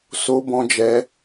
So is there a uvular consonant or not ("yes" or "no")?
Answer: no